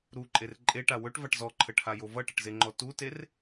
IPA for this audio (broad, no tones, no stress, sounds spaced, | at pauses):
ɾ u ǃʼ e r ǃʼ e ʈ a w ɵ ʈ v a ʈ z ɔ ǃʰ ə ʈʰ a j o v ʌ ʈ ə ʈ z e ŋ͡ǃ ɔ t u t e r